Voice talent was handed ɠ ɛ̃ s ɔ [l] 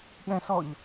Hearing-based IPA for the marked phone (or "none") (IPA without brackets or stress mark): ʎ